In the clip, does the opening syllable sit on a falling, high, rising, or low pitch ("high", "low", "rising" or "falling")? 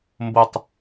falling